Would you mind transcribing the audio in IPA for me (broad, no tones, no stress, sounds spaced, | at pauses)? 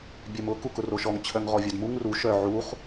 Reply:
bʲ œ m ʊ k u k ʊ r o ʃ ɔ ŋ t͡ɕʰ œ ŋ ʁ ɔ vʲ œ d m u ŋ r u ʃ œ ʕ u χ